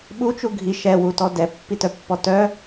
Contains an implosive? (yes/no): yes